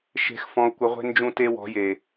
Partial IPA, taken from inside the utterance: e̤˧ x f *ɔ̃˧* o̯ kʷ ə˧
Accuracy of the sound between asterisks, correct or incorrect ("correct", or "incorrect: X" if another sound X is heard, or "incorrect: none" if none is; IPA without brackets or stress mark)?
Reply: correct